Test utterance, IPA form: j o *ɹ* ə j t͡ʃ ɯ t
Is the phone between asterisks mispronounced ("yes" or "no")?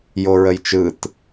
no